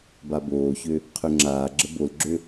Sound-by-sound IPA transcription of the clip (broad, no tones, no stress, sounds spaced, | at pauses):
b a b oː ç ø | qʰ ø ŋ͡ǁ aː ɡ͡ǁ ə b o l ɡ͡ǁ ø